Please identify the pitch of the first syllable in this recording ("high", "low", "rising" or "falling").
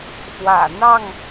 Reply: low